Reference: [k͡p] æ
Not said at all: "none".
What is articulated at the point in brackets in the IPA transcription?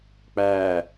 k͡p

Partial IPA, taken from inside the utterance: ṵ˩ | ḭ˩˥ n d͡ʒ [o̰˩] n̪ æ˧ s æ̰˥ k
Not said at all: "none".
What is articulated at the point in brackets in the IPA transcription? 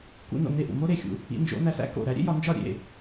o̰˩˥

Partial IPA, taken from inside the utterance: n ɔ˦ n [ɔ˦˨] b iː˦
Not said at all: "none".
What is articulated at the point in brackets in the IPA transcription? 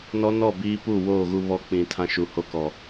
ɔ˦˨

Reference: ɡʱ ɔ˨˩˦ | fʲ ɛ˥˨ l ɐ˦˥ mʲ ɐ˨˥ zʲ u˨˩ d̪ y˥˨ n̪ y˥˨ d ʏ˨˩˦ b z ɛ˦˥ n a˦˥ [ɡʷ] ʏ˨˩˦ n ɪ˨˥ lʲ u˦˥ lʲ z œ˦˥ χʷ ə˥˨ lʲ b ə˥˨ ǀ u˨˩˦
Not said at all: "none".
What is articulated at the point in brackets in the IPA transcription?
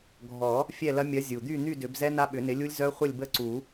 ɓ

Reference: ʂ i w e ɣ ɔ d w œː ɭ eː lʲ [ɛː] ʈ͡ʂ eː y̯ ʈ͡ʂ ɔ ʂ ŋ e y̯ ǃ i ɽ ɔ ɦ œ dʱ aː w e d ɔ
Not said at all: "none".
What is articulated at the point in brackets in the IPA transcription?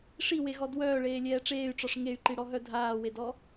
ɛː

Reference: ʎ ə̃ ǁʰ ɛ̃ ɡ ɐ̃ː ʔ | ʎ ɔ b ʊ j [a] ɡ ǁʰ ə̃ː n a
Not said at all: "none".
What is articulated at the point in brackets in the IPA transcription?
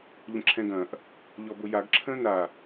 a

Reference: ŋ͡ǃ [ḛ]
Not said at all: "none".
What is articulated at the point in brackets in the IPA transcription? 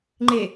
e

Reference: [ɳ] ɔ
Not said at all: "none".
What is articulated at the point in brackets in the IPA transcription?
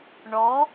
ɳ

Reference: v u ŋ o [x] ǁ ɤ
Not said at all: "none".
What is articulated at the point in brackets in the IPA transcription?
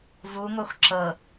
x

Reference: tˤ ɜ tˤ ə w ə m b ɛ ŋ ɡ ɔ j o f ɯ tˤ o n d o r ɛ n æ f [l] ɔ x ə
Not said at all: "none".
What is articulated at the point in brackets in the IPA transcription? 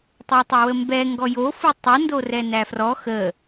r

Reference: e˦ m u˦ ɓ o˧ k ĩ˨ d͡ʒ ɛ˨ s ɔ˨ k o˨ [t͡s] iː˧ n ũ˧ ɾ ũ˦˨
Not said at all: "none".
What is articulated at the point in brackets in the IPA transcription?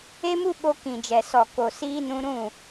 s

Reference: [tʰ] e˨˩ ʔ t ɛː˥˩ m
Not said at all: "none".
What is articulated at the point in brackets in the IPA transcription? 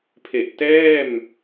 pʰ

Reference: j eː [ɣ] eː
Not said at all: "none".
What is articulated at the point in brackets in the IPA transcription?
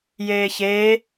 ç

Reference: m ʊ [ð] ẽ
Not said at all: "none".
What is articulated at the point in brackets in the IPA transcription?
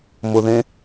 ð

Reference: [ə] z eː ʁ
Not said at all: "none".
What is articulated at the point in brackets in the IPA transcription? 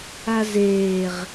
a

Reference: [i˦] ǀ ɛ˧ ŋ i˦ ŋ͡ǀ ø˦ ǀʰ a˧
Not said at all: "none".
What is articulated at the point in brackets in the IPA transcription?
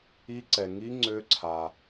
i˦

